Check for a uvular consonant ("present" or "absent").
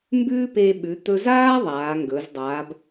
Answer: absent